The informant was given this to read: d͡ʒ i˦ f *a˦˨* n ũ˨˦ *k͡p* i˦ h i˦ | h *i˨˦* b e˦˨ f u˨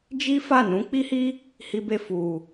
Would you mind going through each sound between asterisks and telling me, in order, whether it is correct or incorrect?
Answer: correct, correct, incorrect: i˦

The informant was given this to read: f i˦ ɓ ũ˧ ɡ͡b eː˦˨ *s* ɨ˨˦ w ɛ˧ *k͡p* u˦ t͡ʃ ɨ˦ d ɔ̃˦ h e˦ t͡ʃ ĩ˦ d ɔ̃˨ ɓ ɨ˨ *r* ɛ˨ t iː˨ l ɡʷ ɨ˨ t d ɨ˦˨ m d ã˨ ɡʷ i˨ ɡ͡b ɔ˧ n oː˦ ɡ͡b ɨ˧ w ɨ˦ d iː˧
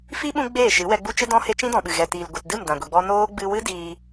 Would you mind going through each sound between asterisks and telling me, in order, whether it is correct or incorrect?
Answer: incorrect: ʃ, incorrect: ɡ͡b, incorrect: ɣ

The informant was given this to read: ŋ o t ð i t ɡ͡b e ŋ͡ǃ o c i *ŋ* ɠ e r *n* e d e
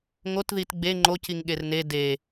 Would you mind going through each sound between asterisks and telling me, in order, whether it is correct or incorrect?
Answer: correct, correct

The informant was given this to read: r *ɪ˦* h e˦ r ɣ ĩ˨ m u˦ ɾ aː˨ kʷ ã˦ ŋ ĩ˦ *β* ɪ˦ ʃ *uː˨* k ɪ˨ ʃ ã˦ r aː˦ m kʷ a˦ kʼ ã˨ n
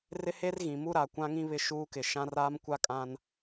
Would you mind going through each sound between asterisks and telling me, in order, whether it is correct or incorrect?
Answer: correct, correct, incorrect: uː˦

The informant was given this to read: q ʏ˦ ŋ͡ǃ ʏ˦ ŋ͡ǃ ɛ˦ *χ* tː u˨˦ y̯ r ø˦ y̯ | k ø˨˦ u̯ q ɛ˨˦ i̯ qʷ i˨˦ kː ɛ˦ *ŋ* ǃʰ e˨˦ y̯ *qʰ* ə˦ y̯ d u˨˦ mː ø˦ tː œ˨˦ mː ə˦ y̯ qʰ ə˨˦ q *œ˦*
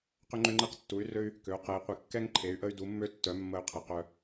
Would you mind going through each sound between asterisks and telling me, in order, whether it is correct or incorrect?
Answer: incorrect: q, correct, incorrect: ʔ, correct

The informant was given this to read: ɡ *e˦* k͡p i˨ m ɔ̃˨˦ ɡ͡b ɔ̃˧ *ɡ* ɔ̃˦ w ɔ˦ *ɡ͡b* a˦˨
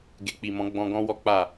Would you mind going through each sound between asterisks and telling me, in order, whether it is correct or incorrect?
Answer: incorrect: e˨, correct, incorrect: k͡p

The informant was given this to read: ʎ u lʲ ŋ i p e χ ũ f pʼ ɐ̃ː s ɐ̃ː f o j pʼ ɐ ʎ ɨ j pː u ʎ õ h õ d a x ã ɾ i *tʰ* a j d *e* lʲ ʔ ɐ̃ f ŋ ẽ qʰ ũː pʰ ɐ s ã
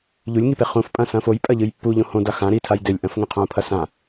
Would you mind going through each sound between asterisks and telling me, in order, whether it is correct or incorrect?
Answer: correct, correct

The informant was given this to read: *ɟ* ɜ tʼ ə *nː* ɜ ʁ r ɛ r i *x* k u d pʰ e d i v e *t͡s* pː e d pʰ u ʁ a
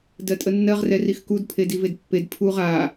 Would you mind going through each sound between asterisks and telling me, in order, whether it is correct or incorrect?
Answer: incorrect: d, correct, correct, incorrect: d

